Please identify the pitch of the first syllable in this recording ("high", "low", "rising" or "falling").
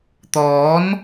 rising